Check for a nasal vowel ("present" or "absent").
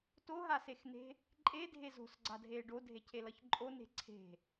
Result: absent